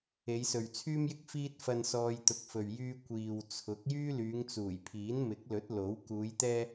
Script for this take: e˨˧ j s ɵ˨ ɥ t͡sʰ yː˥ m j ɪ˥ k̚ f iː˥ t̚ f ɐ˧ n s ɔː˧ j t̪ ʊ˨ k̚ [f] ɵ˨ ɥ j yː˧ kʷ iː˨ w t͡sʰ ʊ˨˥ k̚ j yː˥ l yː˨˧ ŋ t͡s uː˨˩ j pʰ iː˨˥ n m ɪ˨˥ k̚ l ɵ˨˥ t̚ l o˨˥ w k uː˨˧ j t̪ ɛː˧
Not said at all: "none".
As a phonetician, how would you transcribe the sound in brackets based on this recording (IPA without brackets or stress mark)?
f